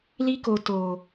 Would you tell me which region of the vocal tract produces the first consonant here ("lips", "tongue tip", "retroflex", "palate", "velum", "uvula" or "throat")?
tongue tip